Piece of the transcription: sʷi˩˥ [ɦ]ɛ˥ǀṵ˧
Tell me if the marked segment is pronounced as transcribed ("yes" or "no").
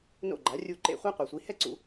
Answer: no